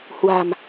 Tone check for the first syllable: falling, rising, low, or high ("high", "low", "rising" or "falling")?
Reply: low